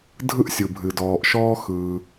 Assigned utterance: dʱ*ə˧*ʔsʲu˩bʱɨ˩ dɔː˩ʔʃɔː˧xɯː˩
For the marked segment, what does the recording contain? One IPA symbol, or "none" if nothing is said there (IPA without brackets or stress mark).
ɯ˧